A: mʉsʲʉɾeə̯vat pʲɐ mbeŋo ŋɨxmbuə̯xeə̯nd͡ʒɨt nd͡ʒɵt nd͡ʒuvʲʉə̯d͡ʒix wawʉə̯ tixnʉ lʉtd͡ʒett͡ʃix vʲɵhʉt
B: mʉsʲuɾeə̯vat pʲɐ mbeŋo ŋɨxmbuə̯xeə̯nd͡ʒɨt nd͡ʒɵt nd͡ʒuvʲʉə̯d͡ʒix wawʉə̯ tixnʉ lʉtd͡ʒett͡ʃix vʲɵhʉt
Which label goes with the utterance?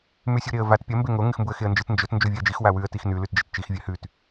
B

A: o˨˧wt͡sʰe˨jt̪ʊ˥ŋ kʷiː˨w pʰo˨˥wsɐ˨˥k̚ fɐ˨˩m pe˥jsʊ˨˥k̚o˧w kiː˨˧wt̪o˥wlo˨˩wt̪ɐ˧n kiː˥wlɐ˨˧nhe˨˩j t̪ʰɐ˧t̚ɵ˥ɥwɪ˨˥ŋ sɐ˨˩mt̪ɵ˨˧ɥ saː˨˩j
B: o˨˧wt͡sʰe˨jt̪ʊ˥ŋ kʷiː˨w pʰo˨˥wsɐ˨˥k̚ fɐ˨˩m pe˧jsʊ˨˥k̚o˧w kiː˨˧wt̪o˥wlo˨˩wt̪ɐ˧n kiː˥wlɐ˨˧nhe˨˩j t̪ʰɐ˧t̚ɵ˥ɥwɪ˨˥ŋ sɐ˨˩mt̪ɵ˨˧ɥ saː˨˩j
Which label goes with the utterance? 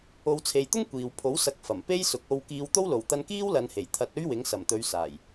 A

